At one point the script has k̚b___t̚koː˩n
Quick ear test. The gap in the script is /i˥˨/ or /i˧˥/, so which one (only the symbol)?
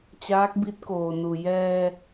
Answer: i˧˥